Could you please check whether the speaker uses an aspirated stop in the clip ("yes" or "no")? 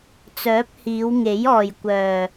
no